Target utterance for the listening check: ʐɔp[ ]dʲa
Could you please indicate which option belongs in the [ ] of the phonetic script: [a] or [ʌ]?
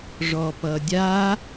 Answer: ʌ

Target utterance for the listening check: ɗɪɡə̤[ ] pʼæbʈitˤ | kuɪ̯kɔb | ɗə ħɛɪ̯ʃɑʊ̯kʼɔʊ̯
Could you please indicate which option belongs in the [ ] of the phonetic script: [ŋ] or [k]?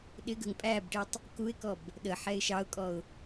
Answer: ŋ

